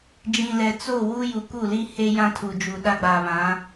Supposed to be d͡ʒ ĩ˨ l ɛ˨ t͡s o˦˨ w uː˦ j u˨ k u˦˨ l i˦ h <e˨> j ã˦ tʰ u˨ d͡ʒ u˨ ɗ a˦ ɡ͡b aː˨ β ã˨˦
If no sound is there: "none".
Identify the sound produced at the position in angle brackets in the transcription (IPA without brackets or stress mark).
e˦